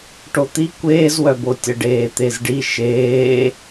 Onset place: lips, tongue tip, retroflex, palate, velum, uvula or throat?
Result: retroflex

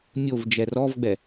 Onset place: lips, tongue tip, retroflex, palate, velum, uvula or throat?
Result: lips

